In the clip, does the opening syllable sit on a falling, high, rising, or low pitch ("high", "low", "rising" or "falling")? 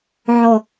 low